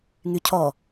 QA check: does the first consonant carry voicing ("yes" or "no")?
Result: yes